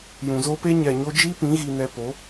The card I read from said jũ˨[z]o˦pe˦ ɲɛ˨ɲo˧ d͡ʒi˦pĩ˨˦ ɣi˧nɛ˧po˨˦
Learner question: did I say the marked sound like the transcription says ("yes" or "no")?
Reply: yes